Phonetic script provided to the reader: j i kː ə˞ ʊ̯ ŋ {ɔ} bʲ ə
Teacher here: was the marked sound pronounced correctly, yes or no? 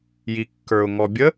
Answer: yes